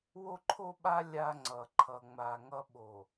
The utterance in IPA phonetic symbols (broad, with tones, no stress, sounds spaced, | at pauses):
w o˦ ǃʰ o˦ ɓ a˦ lʲ a˦ ŋ͡ǀ ʌ˨ ǃʰ ʌ˨ ŋ͡m a˨ ŋ ʌ˦ ɓ o˨